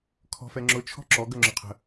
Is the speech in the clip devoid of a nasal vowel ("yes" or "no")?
yes